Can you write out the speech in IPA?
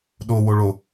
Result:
ɗ o w o ɭ o

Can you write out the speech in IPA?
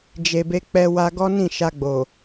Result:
d͡ʒ e˨ b e˧ k͡p ɛ˧ w a˧ ɡ ɔ˦ n ĩ˦˨ ʃ a˧ ɡ͡b o˨

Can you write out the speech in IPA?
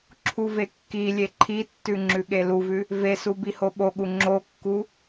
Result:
ǁʰ u v e kː i lʲ e ǃʰ i tː ʉ ŋ͡ǁ ʉ ɠ e l u v ʉ | v e s u b i h o ɓ o ɠ u ŋ͡ǁ o kː u

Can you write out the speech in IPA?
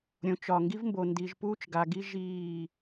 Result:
ɾʲ õ˨˦ t͡ʃ ɒ˨ ŋ ɡ i˦ v m b o˨ n d i˨ ʒ p uː˦ t͡ʃ ɡ a˨ ɡ i˦ ʒ iː˦˨

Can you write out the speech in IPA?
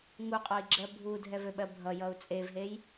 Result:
ŋ u qʼ ɔ i̯ ɡ͡ǁ ɜ bʱ u dʱ ɛ v ø ɓ ɜ bʱ ʌ j ʌ u̯ t͡sʼ e v ɦ e j

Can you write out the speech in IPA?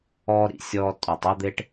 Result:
ɔː˥ ɾ ḭ˧˩ sʲ ɔː˥ tʼ ɔ˥˨ tˤ ɔ˥ d̪ e˥ ʈ

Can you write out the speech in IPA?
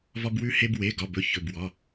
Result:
v ɒ˧ b w ʉ˧ h e˧ b w e˩˧˩ ɡ ɒ˩˧˩ b ɵ˩˧˩ ç ɵ˩˧˩ b w ɒ˩˧˩

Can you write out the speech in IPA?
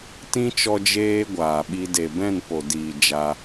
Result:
t ĩ˦ t͡ʃ ɔ˧ d͡ʒ eː˦ ɡʷ aː˨ ɓ i˧ d e˨ b ɛ̃˦˨ n p o˨ d iː˨ d͡ʒ a˧

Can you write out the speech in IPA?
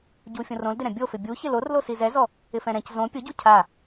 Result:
ɟ u fʲ õ r õ l d ɪ ɾ ɛ̃ bʲ o f ɪ bʲ u ç ɪ l o r l o s i z ɛ z ɔ | ɪ f ɛ̃ ɾ ɛ̃ c z õ pʲ ʊ ɟ u cʰ a

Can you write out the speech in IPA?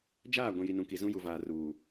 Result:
d͡ʒ aː˦˨ ɡʷ ĩ˨ j i˨ n ũ˨ k i˨ z ũ˦ j u˨ v aː˨ r uː˨

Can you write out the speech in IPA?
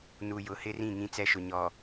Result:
n u˨ j ʊ˨ h ɪ˦ r ĩ˦˨ ŋ ĩ˦ t͡s ɛ˦ ʃ ʊ˨ ɲ ɔ˨

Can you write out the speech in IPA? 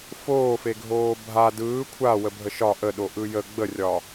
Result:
f oː f e ɡʱ oː bʱ a d ɯː kʷʰ a w ə bʱ ə ʃ ɒ ʔ ə ɗ o ʔ ɯ j ə ɡ͡b ə rʲ ɒ

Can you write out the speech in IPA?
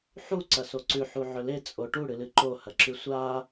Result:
ħ u ǀ ɐ s o ǀ ʉ ħ u ʕ ɵ l e t͡sʼ o ʈ u ɽ ɨ l ɨ ǃ o h ɐ ǁ ʉ sʷ a

